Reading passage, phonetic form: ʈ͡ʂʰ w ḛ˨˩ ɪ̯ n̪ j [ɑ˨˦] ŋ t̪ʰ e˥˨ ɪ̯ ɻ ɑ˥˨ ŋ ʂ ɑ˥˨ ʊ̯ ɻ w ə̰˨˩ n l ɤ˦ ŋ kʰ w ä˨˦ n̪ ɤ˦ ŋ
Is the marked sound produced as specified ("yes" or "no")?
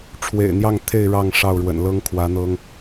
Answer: no